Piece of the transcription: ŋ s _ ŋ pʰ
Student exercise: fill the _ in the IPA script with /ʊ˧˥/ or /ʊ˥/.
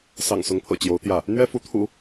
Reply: ʊ˧˥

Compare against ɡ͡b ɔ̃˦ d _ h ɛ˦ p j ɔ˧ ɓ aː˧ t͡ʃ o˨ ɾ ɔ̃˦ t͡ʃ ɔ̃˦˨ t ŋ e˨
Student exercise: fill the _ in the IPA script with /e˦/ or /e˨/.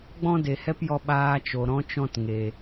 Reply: e˨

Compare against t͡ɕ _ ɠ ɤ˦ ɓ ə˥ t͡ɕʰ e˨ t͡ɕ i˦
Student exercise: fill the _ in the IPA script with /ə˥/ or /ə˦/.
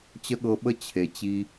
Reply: ə˥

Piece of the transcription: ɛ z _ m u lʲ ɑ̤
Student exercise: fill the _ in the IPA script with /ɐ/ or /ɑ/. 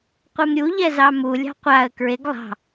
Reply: ɑ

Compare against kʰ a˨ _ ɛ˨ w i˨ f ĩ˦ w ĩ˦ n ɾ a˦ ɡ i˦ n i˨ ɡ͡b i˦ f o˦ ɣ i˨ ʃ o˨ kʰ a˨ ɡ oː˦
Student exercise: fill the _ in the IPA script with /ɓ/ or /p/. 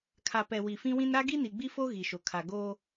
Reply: p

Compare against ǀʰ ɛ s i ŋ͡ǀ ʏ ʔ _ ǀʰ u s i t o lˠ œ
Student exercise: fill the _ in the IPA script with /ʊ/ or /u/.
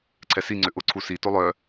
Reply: ʊ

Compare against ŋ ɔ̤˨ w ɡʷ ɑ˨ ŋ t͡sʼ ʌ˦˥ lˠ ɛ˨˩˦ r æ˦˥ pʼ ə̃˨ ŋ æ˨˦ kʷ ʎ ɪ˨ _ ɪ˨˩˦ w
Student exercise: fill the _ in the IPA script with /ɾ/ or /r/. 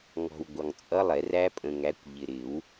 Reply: ɾ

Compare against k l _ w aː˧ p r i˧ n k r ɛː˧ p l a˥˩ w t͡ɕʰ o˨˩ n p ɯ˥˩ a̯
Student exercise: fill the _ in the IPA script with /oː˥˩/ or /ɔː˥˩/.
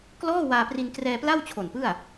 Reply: ɔː˥˩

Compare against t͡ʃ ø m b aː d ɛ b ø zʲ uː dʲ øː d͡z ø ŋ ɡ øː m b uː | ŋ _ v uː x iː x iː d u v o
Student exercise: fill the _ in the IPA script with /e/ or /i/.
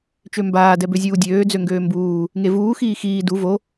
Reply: e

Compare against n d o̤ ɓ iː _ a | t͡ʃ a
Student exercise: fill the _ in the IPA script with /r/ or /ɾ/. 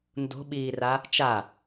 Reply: r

